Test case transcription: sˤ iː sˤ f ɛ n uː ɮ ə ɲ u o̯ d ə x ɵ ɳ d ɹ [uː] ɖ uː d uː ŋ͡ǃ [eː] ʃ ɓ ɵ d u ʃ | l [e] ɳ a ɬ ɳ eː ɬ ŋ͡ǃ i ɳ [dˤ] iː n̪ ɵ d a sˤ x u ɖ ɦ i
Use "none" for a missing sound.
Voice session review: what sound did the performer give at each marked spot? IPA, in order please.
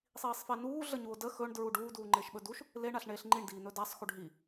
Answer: u, eː, e, d

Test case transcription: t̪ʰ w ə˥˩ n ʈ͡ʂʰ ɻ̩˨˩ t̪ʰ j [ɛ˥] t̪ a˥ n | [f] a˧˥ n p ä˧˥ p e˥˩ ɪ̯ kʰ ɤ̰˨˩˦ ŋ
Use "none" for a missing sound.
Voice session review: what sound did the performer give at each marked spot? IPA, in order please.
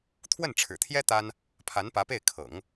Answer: ɛ˥, pʰ

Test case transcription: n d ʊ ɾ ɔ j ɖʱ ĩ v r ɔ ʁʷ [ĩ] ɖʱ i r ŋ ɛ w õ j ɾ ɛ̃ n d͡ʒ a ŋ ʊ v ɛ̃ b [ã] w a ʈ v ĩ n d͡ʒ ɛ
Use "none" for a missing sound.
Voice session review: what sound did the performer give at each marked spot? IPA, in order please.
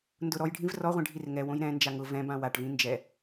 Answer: ĩ, ã

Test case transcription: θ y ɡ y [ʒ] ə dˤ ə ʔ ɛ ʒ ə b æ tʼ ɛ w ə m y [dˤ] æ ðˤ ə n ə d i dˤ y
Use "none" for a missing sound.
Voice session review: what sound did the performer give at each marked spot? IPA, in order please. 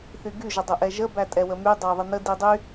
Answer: ʒ, dˤ

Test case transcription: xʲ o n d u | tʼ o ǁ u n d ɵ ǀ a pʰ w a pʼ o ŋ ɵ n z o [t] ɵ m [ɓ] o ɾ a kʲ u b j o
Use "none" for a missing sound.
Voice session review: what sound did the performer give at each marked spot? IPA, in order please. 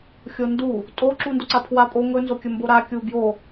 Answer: kʲ, b

